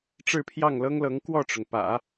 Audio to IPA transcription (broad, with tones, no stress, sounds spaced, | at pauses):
ʈ͡ʂ ɻ̩˥˧ pʰ j ɑ˥˩ ŋ l ɤ˥ ŋ l ɤ˧˥ ŋ k w ɔ˥˩ ʈ͡ʂ ʊ˩ ŋ p ä̰˨˩˦